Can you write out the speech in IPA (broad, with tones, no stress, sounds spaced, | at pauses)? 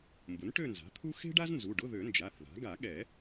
m b ʊ˩˥ n ʈ ø˥˧ n z a̤˩˥ t̪ʰ u˥ x e̤˥ ɖ a˥ z n z u˩˧˩ ɖ ʊ˧˥˧ ð ø˨˩˦ n d͡ʒ a˩˧˩ θ ð a̤˩˥ ɡ a˨˩˦ ɠ ɛ˨˩˦